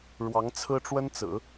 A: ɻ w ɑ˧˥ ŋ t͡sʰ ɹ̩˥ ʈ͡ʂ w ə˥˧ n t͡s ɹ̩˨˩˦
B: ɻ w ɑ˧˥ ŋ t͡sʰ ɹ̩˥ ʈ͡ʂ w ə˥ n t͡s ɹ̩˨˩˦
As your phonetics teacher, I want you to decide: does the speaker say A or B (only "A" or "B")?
B